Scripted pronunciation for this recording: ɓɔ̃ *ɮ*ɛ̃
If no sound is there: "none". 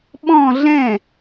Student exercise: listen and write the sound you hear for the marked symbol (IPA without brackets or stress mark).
ɮ